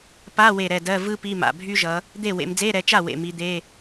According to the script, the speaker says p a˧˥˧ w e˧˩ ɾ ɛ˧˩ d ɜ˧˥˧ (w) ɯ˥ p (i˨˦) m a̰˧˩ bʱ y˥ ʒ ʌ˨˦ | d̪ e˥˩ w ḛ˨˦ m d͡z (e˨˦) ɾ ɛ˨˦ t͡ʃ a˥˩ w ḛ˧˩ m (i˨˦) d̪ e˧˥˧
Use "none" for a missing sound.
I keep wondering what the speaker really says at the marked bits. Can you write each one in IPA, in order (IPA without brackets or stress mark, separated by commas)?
v, i˧˥˧, e˧˥˧, i˨˦